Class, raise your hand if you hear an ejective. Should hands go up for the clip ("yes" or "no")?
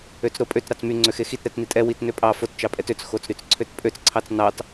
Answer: yes